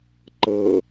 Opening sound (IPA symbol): ǃ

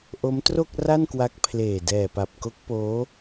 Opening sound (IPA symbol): ʔ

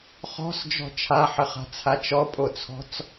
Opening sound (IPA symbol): χ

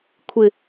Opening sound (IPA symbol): kʷʰ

